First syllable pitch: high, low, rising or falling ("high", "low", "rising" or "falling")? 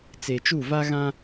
low